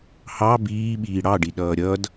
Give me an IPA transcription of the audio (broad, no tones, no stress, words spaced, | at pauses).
hɑ biːɓiː ɽɑɖiɗʌː ɾʲʌd